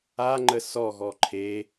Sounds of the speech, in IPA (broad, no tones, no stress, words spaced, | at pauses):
aŋ͡ǃə sɔɣɔ ǃʰe